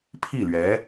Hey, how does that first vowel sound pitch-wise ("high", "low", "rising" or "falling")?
falling